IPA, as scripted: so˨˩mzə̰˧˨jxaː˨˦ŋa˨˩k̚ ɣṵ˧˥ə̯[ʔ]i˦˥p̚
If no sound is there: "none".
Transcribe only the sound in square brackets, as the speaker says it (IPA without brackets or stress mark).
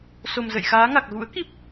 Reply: k